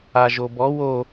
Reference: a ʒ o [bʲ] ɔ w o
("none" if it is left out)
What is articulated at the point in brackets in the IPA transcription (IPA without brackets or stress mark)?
b